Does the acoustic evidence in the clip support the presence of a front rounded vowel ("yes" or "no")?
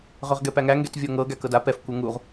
yes